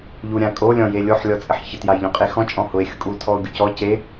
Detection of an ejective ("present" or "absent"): present